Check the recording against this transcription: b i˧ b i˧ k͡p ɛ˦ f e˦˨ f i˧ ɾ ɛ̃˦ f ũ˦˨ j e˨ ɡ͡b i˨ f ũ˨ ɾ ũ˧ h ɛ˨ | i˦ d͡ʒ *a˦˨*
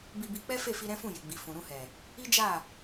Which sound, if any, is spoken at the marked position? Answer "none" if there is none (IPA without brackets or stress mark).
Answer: a˦˨